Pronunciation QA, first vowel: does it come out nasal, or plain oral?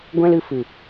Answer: nasal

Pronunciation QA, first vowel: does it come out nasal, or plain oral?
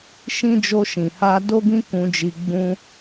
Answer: nasal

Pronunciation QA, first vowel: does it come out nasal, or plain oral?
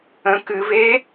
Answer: nasal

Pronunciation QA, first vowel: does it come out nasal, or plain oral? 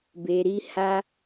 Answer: oral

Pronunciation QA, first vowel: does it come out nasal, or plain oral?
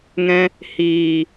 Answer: nasal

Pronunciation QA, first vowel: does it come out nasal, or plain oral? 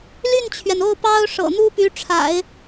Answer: oral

